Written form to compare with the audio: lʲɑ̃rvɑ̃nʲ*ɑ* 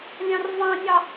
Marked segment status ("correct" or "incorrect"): correct